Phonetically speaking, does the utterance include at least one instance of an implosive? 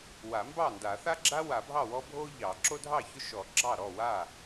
no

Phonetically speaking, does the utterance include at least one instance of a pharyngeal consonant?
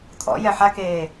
yes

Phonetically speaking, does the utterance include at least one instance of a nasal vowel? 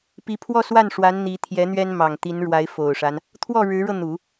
no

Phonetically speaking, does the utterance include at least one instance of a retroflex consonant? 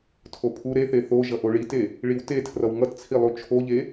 yes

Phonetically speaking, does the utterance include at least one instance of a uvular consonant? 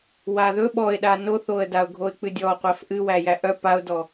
yes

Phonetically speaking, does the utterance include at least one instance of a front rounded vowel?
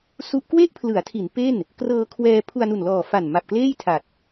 no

